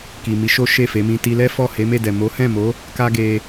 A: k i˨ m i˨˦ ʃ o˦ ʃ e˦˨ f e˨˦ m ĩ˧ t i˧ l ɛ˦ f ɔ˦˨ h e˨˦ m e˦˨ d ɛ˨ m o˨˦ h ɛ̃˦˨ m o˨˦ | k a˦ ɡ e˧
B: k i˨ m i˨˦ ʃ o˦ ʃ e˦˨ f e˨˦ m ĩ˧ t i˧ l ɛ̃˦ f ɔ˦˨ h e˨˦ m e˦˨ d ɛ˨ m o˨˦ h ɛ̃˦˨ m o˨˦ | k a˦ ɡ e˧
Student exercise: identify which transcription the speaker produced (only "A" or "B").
A